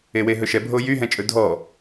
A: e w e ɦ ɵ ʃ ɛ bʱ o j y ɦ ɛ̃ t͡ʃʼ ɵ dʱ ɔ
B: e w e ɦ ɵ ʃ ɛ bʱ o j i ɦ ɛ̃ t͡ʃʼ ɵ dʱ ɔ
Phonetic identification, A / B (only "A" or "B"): A